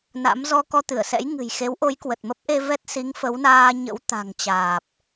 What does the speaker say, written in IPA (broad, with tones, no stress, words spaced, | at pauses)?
na̰˧˥mzɔ˧ kɔ˧t̪ɨ˧˩ə̯sɛ̰˧˥j ŋɨ̤˨˩jxe˨˦wʔo˨˦j kwə˨˩t̚mə˦˥p̚ʔe˧ vɛ˦˥t̚si˨˦ŋfə˨˦wnaː˧ ɲə̰˧˥w t̪a̤˨˩ŋ t͡ɕaː˨˩p̚